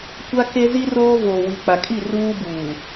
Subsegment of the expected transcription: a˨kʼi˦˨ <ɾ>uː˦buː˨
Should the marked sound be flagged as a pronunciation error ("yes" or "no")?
yes